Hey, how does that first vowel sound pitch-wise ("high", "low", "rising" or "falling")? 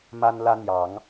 high